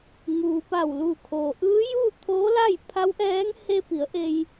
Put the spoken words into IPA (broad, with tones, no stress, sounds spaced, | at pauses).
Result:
ŋ uː˩ p a˧˩ w l uː˧˩ kʰ oː˩ ʔ ɯː˧˥ j uː˥˨ t̪ʰ oː˧˥ l a˥˨ j pʰ a˧˥ w ʔ ɛː˧˥ ŋ h e˧ p i˩˧ ə̯ ʔ e˧ j